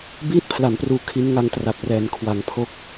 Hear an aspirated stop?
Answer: yes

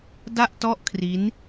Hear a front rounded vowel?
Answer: no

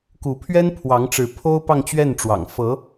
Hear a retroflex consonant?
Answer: yes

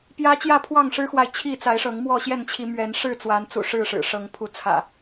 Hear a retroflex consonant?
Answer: yes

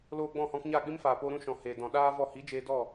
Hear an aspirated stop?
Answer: no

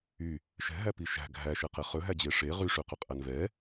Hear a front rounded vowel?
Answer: yes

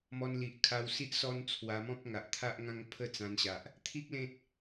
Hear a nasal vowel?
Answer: yes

